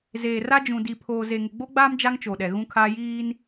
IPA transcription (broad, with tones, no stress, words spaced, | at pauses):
zeː˨ra˦ d͡ʒũ˨di˨pʰoː˨ ze˨ŋɪ˨ɡ͡bo˦ɡ͡baː˦m d͡ʒa˦ŋt͡ʃo˨ɗɛ˨ ɣũ˦kʰaː˦ jiː˦n